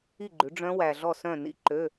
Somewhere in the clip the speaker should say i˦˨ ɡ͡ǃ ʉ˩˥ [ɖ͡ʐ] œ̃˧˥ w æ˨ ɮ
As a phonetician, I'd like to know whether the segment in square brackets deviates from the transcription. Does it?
no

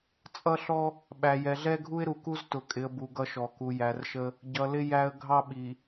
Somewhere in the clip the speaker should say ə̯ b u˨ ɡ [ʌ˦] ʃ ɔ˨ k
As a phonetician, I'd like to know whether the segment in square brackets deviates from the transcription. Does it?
no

